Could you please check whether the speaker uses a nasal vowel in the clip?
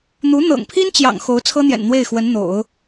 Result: no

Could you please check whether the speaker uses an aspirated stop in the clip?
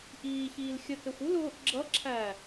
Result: yes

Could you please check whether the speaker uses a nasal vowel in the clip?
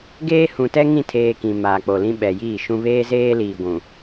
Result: yes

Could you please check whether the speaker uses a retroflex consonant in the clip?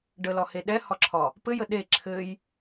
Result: yes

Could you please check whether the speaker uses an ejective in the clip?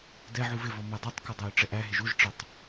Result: no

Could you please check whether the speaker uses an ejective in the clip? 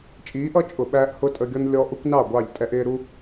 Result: yes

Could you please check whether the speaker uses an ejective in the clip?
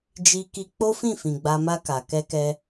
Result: no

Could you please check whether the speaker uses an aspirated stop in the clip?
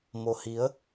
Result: no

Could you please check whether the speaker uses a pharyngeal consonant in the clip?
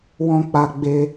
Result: no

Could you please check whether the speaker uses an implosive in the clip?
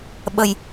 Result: yes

